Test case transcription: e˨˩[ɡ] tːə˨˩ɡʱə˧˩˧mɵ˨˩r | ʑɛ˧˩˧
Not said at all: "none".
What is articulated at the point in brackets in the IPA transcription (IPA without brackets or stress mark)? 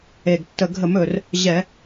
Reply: ɡ